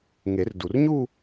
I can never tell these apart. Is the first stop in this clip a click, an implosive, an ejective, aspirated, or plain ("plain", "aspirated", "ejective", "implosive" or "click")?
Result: plain